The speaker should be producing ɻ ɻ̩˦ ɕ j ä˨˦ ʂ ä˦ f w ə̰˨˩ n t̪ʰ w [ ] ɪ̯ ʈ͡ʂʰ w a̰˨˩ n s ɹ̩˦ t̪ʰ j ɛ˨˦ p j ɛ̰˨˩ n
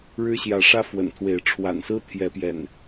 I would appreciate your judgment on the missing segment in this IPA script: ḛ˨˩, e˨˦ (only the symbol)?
e˨˦